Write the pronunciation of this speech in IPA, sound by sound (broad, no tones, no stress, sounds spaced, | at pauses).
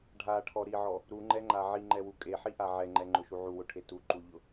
ɖʱ a ʈʰ ɔ ɾ i ʕ ɔ | ɾ u ŋ͡ǃ ɛ ŋ͡ǃ a ʕ i ŋ͡ǃ ɛ w u kʼ e ħ i ʔ a ʕ ɛ ŋ͡ǃ ɛ ŋ͡ǃ ʊ ʃ u ʕ u w ʊ ʈʰ e t u ǃ u ʎ ʊ